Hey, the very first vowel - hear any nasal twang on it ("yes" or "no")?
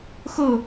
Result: no